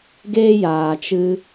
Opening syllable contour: high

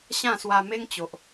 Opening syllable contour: falling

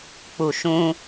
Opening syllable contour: low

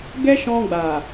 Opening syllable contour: high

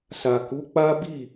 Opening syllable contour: low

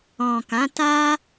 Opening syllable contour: low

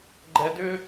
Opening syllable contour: low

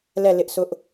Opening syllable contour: falling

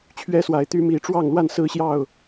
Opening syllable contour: high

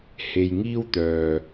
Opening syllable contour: low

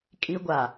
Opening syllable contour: high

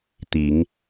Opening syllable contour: low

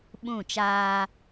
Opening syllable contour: falling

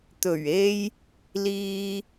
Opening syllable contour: low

